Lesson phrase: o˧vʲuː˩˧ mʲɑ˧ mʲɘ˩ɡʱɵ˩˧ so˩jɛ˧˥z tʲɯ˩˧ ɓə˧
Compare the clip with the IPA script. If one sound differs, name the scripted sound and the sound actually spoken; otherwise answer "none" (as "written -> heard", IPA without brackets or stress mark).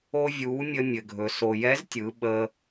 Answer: ɑ˧ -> ə˧